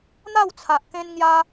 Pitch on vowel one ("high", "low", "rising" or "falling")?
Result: falling